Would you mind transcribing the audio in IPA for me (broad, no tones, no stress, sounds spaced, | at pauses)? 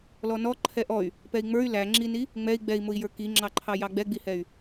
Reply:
l ɔ n ɔ ǃʰ ɛ ʔ ɔ y̯ | p ɛ i̯ ŋ͡m ə˞ y̯ l æ ŋ͡ǁ i n i | ŋ͡m ɛ i̯ ɡ͡b ɛ i̯ m ʊ i̯ j ə˞ k i ŋ͡ǁ ɑ ǃʰ ɑ j ɑ ɡ͡b ɛ ɡ͡b i h ɛ y̯